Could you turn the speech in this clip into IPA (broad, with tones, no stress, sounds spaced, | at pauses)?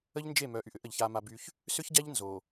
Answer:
ə˦ ʎ n d͡ʒ e˦˨ m œ˨˦ ʔ y˨ ʔ ʏ˦ ʔ ə˨ ʎ ç a˦ m a˦ b y˦ ç | s ʏ˦ ç ɟ a˦ ʎ n z o˨